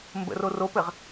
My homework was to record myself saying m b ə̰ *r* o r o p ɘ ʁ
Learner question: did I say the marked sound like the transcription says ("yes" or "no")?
yes